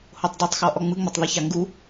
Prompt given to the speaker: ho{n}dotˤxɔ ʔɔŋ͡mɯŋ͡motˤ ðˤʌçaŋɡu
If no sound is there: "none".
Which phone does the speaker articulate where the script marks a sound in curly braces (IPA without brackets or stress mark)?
tˤ